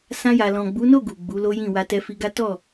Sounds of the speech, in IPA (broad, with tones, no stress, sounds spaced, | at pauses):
s ã˧ j a˨ l ɔ̃˨ ɡ͡b u˨˦ n o˦˨ ɡ u˨ ɡ͡b u˨˦ l o˦ j ĩ˦˨ w a˧ t ɛ˧ f i˧ ɡ a˦ t ɔ˦˨